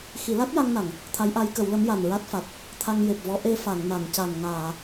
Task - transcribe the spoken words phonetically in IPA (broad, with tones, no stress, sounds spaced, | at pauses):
x i˨˩˦ l a˦˥ t̚ j a˧ ŋ n a˨˩˨ ŋ | t̪ʰ a˧˥ j ʔ a˧˥ j k ə˨˩˦ w l ə˧˥ m j a˨˩ n ɹ a˦˥ t̚ f a˨˩ t̚ | t̪ʰ a˧ ŋ j e˨˩ p̚ v ɔ˧˥ ʔ e˧ f a˨˩˨ ŋ n a˨˩˨ n c a˨˩ n ŋ aː˨˩˨